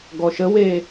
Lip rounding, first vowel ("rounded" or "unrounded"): rounded